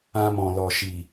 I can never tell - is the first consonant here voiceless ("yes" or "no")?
no